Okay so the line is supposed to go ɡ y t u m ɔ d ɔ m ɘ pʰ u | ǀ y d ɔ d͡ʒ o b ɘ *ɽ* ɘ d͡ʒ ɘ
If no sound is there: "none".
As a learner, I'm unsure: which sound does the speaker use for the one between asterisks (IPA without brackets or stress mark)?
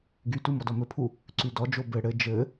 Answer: ɽ